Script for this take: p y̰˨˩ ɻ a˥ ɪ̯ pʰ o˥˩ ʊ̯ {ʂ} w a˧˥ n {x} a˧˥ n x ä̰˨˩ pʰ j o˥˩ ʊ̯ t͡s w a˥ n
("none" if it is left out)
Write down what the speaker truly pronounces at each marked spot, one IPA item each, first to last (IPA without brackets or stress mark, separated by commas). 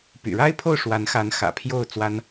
ʂ, x